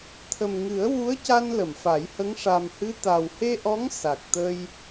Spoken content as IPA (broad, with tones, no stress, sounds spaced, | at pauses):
t̪ʰ ə˨˩ m ŋ ɨ˨˩˦ ə̯ w u˧˥ ə̯ c a˧ n l ə˨˩˨ m f a˨˩˦ j h ə˧˥ ŋ ʂ a˨˩ m h ɨ˧˥ t̪ a˨˩ w h e˧ ʔ ɔ˧˥ ŋ s a˨˩ k̚ t̪ ə˧ j